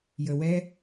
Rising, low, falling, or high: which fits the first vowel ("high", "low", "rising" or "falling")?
low